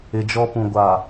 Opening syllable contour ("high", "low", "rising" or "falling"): low